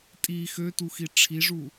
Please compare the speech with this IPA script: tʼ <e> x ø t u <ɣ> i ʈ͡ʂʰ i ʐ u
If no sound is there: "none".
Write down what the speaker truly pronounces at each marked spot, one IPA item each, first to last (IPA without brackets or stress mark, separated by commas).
i, x